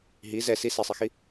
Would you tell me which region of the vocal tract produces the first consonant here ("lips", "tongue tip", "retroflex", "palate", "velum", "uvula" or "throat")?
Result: throat